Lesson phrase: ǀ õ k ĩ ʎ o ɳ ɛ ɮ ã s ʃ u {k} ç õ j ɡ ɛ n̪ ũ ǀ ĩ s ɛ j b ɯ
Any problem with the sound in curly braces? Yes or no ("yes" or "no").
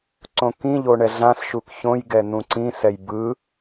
no